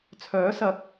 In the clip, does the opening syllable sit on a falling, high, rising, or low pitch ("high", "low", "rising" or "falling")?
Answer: rising